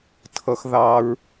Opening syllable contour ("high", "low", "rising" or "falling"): high